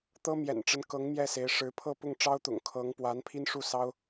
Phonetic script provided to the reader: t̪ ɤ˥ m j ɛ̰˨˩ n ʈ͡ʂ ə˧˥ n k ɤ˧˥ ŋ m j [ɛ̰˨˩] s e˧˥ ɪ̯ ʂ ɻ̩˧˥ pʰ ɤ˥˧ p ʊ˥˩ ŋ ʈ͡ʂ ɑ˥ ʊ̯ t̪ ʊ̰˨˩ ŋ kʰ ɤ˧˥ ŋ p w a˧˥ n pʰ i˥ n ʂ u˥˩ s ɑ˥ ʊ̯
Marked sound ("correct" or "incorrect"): incorrect